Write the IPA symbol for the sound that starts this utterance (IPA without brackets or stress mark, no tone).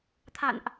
t̪ʰ